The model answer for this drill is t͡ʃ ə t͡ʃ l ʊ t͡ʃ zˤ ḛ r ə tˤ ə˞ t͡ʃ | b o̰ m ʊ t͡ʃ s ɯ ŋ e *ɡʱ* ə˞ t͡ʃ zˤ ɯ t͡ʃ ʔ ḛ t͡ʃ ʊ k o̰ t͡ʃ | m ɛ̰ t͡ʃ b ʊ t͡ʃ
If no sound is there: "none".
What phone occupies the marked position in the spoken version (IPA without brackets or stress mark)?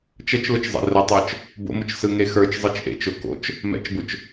x